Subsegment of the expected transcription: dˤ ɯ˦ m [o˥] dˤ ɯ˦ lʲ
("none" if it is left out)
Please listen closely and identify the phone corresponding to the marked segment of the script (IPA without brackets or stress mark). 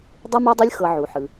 o˦